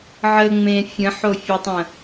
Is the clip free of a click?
yes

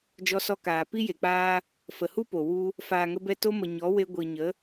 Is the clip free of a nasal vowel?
yes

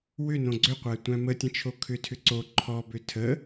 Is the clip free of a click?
no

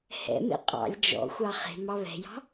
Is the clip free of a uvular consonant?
no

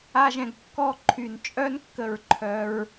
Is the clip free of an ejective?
no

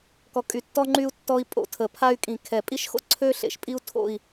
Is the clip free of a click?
no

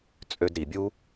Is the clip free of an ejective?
no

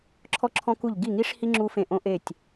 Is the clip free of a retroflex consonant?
no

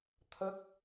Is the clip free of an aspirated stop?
no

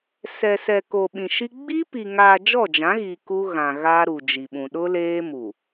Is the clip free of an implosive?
no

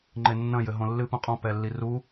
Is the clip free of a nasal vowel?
no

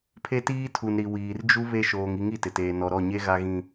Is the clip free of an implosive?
yes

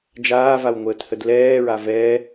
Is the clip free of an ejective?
yes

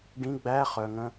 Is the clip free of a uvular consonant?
no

